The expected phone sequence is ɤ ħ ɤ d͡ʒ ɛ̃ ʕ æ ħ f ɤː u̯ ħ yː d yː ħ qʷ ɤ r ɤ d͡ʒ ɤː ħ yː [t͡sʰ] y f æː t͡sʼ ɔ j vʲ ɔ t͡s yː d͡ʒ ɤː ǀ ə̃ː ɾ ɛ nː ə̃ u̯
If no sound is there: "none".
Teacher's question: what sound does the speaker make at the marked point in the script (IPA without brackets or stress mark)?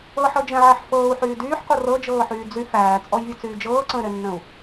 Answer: d͡z